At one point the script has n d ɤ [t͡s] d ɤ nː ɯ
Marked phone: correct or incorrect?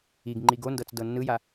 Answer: correct